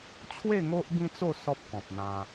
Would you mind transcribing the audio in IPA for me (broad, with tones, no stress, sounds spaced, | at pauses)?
t͡ɕʰ w e˥˧ ŋ o˦ ʔ b ĩ˦ t͡s o˥˧ s ɔ˦ p̚ k ɔ̃˨ p̚ n̪ ã˧